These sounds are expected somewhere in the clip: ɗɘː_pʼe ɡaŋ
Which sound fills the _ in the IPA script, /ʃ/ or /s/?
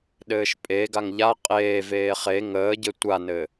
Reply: ʃ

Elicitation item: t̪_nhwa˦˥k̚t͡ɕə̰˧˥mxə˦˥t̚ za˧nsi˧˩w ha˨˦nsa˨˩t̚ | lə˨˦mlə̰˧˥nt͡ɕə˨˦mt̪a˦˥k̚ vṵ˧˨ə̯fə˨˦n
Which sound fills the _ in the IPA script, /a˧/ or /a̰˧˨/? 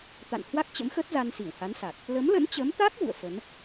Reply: a̰˧˨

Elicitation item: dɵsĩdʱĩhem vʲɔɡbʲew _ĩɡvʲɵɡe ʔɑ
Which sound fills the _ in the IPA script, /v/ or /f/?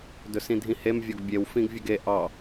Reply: f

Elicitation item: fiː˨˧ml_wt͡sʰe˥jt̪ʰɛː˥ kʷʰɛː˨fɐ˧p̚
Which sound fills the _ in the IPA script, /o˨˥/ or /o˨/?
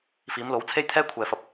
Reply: o˨˥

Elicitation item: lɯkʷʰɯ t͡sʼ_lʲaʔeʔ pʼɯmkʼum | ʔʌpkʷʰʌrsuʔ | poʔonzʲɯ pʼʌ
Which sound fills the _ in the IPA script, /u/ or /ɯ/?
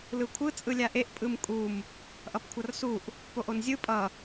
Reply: ɯ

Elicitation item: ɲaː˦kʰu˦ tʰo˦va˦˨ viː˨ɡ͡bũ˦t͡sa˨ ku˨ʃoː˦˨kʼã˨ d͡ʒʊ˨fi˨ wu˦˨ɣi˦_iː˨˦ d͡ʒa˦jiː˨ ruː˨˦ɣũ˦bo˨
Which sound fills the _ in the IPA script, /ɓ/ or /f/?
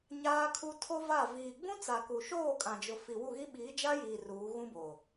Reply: ɓ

